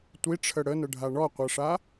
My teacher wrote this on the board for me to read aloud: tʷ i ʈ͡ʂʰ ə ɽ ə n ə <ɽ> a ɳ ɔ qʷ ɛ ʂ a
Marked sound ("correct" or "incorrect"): incorrect